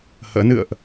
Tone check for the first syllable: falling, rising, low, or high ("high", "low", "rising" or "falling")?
rising